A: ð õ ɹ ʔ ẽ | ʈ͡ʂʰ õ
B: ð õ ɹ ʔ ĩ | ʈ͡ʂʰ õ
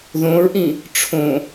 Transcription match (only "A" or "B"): B